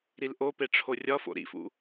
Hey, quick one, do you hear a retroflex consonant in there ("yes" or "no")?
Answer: yes